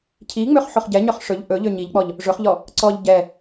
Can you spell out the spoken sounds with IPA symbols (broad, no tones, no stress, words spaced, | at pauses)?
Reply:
cʰiŋ͡møχ ħoχɟɛɲœχ ʂɵʎ ʔɵ ʎøɲiʎk͡pɔʎ | ʐɵχʎɔ | ǀɔʎ ɟɛ